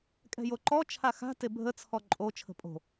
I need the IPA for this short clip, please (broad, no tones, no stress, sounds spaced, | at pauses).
kʼ ɛ̤ j o ǃ ɔ t͡ʃʰ a x a̤ t e bʱ ə t͡sʰ ɔ ǃʼ o t͡ʃʰ ə̤ pʼ o̤